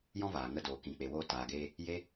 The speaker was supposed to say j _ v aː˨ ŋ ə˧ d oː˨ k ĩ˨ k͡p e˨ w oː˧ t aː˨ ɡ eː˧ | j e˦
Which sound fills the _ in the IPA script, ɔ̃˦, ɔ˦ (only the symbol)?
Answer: ɔ̃˦